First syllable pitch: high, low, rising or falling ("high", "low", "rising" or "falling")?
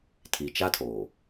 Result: low